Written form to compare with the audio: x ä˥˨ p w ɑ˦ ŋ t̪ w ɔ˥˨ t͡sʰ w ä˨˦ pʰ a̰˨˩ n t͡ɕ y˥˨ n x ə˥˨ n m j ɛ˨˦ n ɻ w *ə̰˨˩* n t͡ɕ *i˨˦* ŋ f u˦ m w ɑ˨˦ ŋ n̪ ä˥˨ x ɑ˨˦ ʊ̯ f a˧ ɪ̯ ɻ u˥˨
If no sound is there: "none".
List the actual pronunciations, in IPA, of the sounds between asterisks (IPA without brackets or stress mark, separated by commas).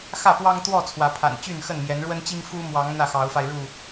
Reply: ə˦, i˦